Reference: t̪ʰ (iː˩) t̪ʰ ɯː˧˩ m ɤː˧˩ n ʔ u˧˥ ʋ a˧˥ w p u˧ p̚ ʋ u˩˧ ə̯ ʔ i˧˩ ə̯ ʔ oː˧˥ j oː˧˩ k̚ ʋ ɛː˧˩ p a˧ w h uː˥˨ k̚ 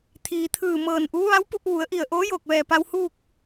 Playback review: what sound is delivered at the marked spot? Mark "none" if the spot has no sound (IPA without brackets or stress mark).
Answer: iː˩